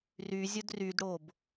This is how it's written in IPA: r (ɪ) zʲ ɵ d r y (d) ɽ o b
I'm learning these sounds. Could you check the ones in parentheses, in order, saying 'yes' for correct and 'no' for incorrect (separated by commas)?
no, yes